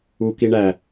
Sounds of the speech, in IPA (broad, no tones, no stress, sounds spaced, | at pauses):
u k i ɳ æ